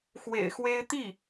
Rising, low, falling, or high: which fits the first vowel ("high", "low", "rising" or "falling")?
low